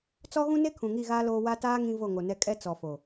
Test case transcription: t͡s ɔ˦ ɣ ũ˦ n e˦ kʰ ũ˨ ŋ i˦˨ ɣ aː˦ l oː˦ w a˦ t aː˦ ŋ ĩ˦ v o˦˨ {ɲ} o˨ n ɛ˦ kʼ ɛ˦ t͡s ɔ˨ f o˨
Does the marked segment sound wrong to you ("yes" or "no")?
yes